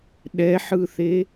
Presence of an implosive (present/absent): present